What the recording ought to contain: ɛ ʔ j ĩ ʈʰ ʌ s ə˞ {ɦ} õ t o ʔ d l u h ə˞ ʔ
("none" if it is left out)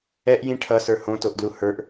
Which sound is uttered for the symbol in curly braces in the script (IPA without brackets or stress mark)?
h